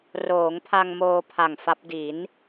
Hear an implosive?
no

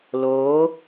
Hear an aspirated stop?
no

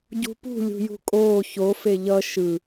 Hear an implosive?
no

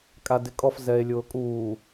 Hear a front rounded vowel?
no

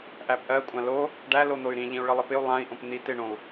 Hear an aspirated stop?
no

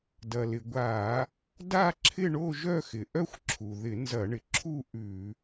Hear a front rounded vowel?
yes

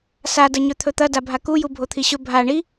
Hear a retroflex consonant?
yes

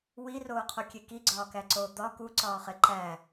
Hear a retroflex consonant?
no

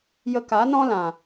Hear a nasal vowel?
yes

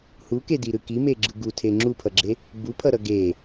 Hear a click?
yes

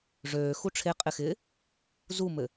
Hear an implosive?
no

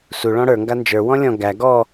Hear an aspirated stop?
no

